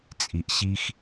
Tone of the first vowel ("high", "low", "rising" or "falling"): low